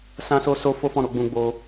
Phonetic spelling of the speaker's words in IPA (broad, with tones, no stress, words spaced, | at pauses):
sã˧so˧ so˦fo˦fɔ̃˦˨ɾo˧ ɡ͡bũ˦ɡ͡bo˦